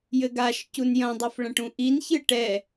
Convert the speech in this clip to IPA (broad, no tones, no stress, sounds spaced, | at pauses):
j ɘ ɡ a ʃ c u n j ɐ̃ dˤ ɘ f ɭ ɐ̃ ʈ ũ ʔ i n ç ɨ ʈ ɛ